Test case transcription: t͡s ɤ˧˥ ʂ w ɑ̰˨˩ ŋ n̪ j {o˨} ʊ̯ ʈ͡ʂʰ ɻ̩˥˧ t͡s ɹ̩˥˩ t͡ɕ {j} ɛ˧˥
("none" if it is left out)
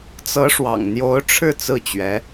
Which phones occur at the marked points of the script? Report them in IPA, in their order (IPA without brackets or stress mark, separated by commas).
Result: o˧˥, ɥ